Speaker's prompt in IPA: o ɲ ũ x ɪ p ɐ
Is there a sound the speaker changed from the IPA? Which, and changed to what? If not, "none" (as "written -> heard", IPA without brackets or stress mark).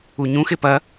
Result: o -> u